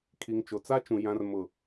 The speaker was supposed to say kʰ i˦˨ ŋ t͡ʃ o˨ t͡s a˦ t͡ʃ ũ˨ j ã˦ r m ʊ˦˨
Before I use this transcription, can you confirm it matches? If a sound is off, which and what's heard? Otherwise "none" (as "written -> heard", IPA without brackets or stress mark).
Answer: i˦˨ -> i˨